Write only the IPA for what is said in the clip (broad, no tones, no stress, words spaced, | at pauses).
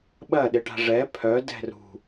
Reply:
ɓɐɗɪʈa̤ ʐɛ pʰœdɛ̤ rṳ